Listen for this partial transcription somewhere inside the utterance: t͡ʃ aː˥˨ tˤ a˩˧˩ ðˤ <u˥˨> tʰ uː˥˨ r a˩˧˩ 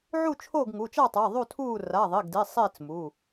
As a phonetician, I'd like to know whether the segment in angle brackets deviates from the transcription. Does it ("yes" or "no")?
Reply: no